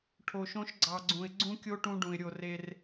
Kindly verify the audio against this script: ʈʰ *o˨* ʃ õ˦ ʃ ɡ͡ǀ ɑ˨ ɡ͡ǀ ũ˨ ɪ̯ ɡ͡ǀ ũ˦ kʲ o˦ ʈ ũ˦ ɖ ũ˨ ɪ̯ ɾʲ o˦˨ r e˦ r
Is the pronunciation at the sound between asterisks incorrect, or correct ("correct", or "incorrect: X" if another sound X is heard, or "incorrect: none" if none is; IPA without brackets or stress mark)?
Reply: correct